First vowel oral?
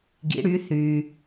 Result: yes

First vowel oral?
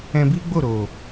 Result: no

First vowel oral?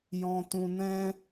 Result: no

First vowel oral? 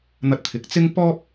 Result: yes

